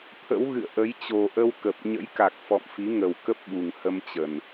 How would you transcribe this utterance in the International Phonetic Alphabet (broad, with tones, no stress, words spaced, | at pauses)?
t̪ʰə̰˧˥wɣɨ̰˧˨ə̯ʔə˨˦j t͡ɕo˨˩ʔə˧w kə˨˩p̚ ɲə̰˧˥jka˨˩k̚fɔ̰˧˨mfi˨˦ ŋə˨˩wkə˦˥p̚ɓu˨˩ŋhə˧m t͡ɕə˨˩n